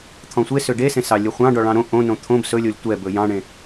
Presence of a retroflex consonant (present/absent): present